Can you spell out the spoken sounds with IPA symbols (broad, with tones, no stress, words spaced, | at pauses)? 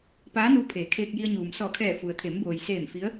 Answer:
paː˧˥nuː˧ pʰeː˩˧kʰeː˧k̚ji˧ə̯ ɲuː˩msɔː˧˩kʰɛː˧˩ fu˩ə̯t̪ʰe˩˧mboː˩j seː˧˩m fi˧˥ə̯